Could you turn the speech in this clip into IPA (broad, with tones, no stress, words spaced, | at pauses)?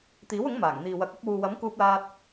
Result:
t̪iː˨˥wʊ˨˥ŋ maː˨˩ŋn̪iː˨wɐ˨˥k̚ɐ˨˥p̚ wuː˨wɐ˨˥mkuː˧p̚laː˧t̚